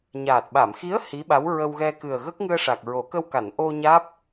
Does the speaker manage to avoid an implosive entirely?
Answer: no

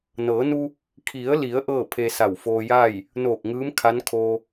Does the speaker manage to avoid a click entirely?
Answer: yes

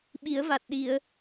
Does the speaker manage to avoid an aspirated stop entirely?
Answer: yes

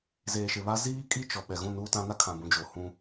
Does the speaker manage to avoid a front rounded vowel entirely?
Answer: yes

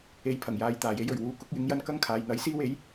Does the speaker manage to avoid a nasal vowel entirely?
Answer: yes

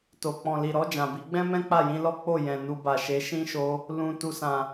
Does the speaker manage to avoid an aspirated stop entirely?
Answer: yes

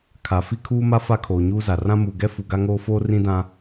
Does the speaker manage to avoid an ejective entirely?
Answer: yes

